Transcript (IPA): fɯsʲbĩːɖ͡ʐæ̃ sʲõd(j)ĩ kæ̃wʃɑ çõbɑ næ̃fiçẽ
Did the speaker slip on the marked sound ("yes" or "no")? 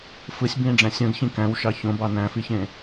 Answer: yes